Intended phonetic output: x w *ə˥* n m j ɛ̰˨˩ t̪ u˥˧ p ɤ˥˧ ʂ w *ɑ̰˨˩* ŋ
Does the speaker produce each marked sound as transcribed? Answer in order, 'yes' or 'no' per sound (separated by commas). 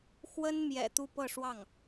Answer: yes, no